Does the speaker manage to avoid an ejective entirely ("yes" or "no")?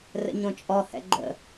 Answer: no